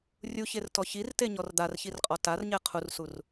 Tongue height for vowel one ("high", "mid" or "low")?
high